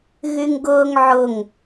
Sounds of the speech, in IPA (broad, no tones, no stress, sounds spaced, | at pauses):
ɣ y ŋ ɡ ʊː ŋ ʕ ʊ ŋ